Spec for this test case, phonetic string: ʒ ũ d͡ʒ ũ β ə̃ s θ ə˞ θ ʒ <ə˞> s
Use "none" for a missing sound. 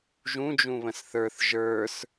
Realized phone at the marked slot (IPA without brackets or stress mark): ə˞